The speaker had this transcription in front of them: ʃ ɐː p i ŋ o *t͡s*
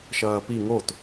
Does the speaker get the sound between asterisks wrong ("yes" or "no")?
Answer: yes